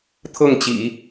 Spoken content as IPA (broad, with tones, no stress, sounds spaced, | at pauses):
t̪ʰ ɤ˥˩ ŋ t͡ɕ ḭ˨˩˦